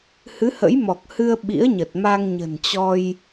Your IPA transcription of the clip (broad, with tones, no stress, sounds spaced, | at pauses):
h ɨ˨˦ h ə̰˧˥ j m ɔ˨˩ k̚ h ɨ˧ ə̯ ɓ ḭ˧˥ ə̯ ɲ ə˨˩ t̚ m a˧ ŋ ɲ ə̤˨˩ n t͡ɕ ɔ˧ j